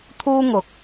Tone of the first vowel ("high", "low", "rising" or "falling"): high